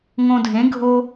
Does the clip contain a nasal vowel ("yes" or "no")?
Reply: yes